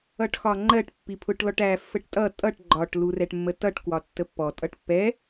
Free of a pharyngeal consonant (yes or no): yes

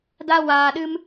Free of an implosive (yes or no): no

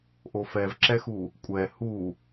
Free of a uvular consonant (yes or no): yes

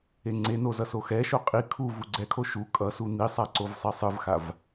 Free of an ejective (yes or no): no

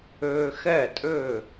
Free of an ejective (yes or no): no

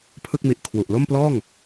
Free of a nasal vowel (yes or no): yes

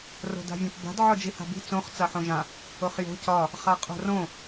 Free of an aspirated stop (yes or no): yes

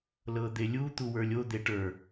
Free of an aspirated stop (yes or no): yes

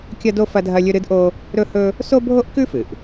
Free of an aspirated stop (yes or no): yes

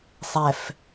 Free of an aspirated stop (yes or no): yes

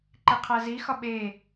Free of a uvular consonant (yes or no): no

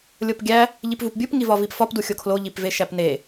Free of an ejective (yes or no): yes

